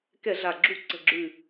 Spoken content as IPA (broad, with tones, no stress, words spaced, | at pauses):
kɛ˧˩˧ɮa˨˩ɡ͡ǁu˧˩˧ ǀə̤˨˩ɡ͡ǁʉ˨˩